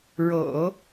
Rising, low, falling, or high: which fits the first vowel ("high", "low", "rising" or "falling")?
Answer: low